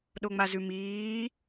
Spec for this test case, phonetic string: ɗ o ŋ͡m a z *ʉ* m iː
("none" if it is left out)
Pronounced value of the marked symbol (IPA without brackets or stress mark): ʉ